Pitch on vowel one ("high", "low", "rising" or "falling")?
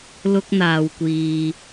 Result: high